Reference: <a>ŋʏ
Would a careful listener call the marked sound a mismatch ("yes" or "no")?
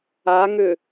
no